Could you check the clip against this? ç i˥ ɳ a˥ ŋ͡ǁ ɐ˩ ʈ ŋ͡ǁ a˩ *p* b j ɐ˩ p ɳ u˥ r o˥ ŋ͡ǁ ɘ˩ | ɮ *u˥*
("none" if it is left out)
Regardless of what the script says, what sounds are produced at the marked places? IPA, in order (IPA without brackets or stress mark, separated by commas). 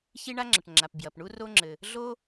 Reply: p, o˥